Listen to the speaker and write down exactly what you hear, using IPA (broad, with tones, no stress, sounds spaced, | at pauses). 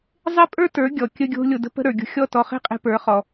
zˤ e˦ pʼ ə˞˦ t ə˞˨˦ ɡʲ ɔ˨ kʲ ə˧ ɡʲ o̤˧ lʲ o˨ d ə̤˧ p ə̤˧ ɾ ə˞˨ ɡʲ o̤˧ xʲ ɔ˦˨ t ɔ˧ χ e̤˦ qʼ e̤˧ p ə˞˨˦ χ ɔ˧